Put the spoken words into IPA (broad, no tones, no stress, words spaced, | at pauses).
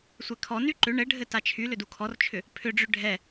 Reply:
sʷɛkʰɔny ǃʏ ɳɘɖʱɘ tat͡ʃʰylʏ dukʰɔrt͡ʃʰʏ | pʰʏɖ͡ʐʏ ɖʱɛ